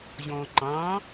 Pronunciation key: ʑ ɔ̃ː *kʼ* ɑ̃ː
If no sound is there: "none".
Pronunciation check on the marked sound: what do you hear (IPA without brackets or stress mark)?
ǃ